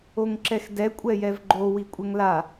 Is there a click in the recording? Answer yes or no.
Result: yes